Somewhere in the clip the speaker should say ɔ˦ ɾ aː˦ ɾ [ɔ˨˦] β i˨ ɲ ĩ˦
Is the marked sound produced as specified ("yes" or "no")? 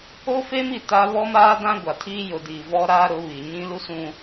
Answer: no